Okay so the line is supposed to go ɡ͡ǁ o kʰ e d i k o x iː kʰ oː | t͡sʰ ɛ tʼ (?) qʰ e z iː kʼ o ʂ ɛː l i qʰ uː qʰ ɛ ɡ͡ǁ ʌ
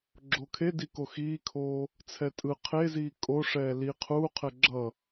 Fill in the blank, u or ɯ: ɯ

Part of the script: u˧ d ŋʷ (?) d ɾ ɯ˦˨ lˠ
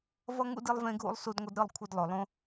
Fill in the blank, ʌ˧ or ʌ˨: ʌ˧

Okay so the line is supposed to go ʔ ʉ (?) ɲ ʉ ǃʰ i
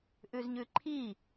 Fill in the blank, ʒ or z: z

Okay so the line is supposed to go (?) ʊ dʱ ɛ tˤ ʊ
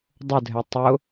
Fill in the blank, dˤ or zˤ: dˤ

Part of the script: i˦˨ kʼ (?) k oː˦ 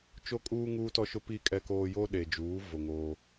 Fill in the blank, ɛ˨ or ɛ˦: ɛ˦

